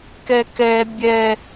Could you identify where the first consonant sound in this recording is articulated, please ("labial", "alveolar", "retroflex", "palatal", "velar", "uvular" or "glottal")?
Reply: velar